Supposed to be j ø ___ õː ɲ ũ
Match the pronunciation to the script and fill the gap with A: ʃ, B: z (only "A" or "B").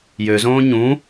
B